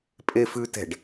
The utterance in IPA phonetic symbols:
pʼ e f ʉ t ɛ̤ ɖ

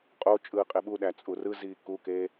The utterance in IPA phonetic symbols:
qʼ o t͡ʃʼ ɯː qʼ e ɓ u ɗ æ t͡sʼ u r ɯ z iː k u k eː

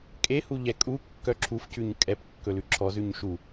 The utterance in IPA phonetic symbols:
kʼ e h u ʎ ɛ kʼ u kː œ ǁʰ u f c ʉ ɲ kʼ ɛ p kː ɵ l ʉ ǁʰ ɔ z ʉ ɲ ʃ u

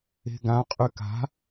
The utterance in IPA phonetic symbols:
e̤ ɡ ã qʼ y k a̤

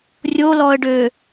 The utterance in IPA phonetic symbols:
rʲ o l ɔ ə̯ ɖ ø

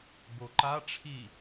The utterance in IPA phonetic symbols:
b o ǃ a ʈ͡ʂʰ i

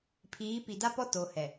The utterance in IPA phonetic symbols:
pʰ iː˨˦ p i˨ d a˦ p ɔ˦ t o˨ h ɛ˨

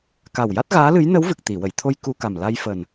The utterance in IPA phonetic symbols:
k a˨˩ w j a˦˥ t̚ ɣ aː˧˥ l ɨ˧˥ j n ə˧˥ w v ɨ˨˩ k̚ t̪ i˨˩˨ w ə˨˩˨ j t̪ʰ o˧ j k u˧ k a˨˩ m l a˧ j f əː˨˩ n

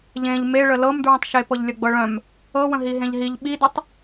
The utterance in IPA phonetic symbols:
ʎ ẽ ʎ m e ɭ ə l ɤ m d ɹ œ̃ tˤ ʃ e p ɤ ʎ lʲ ə ɡ͡b ɤ ɭ œ̃ m | ɤ w ə̃ ɦ i ɦ ẽ ʎ ɦ i ʎ ɓ i d ɤ tˤ

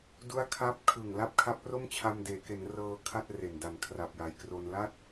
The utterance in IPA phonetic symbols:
d u˦˥ a̯ kʰ a˦˥ p̚ kʰ ɯ˨˩ ŋ l a˥˩ p̚ kʰ a˦˥ p̚ r o˥˩ m t͡ɕʰ a˧ m d eː˩˦ k e˩˦ n r ɤː˧ kʰ a˥˩ t̚ r e˨˩ n d a˨˩ n kʰ r a˨˩ p̚ j a˨˩ j k r o˧ n l a˥˩ t̚

